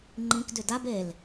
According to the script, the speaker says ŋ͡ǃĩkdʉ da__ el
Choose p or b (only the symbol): b